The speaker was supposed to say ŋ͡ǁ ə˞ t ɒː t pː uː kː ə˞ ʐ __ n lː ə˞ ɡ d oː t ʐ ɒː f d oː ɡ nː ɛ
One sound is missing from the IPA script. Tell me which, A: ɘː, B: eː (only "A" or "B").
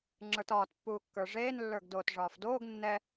B